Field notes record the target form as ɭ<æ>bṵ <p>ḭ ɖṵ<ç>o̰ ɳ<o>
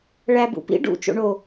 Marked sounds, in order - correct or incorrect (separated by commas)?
correct, correct, incorrect, correct